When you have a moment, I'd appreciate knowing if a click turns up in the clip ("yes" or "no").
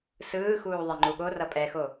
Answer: yes